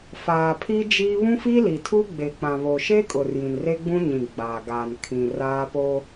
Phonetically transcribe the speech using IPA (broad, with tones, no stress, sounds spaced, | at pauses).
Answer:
f aː˨ pʰ i˦ d͡ʒ iː˦ β ũ˦ f iː˦ l i˨ tʰ u˦ ɡ͡b e˨ k͡p ã˨ β o˨ ʃ e˦ kʼ ʊ˨ r j ĩ˨ n r e˦ ɡ͡b ũ˦ ɲ ĩ˨ ɡ͡b aː˨ ɡ aː˨ n kʰ ĩ˨ r aː˦ p o˦